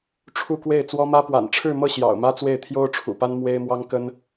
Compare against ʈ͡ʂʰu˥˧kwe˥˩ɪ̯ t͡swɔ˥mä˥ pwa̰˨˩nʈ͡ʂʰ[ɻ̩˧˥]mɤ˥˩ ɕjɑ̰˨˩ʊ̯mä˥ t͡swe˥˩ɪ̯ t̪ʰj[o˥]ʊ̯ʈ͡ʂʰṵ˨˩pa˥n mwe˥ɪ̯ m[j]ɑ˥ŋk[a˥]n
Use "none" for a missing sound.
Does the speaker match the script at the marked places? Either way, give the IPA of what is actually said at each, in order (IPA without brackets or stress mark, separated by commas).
ɻ̩˥˧, o˥, w, ə˥